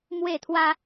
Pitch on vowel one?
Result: falling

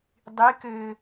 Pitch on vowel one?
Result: rising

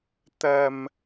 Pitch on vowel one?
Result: high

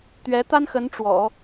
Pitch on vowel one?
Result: rising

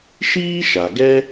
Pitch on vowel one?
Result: high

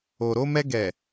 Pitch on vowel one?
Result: low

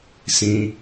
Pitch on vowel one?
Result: high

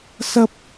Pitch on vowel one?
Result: high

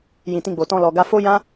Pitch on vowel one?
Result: low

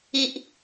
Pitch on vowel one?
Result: low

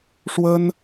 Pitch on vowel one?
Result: high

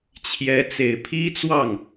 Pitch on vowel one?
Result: rising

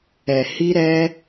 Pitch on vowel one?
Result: low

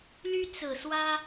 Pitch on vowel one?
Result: high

